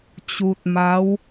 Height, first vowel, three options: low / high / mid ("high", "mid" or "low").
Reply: high